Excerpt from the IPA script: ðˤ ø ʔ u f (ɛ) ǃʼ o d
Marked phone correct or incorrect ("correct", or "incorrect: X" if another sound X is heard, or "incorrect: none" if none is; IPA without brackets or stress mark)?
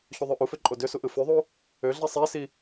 incorrect: ø